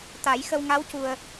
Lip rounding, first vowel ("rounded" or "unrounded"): unrounded